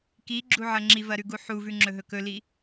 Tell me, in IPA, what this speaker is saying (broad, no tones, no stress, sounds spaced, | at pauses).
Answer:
k i ɡ͡ǁ u ʕ ɐ ŋ͡ǁ i v ɐ ɾ ʉ ɡ u ħ u v ʉ ŋ͡ǁ ɵ ɦ ɵ k ɵ l i